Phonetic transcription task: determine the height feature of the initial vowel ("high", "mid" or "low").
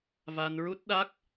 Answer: low